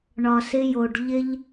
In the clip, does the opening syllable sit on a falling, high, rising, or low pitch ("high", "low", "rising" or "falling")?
low